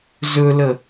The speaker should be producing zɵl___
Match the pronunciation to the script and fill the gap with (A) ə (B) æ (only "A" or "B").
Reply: A